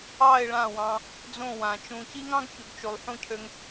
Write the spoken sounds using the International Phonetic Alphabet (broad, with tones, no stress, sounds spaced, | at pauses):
ɑ˦˨ ɪ̯ ɭ ã˦˨ w ɑ̃˧ | d͡z õ˦˨ w ã˨ t͡ʃ ũ˧ c i˦ ŋ ɑ̃˦ ɡ ç ø˨ ɡ t͡ʃ u˨ lˠ ħ ũ˦ cʰ ø˦ ŋ